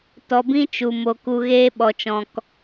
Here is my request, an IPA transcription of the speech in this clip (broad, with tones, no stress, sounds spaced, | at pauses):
t ɔ˧ b ĩ˦ t͡ʃ u˨ m o˧ k u˧ ɣ eː˦ ɓ ɔ˧ t͡ʃ ɔ̃˧ k